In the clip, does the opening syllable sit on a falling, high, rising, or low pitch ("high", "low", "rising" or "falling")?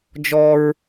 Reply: high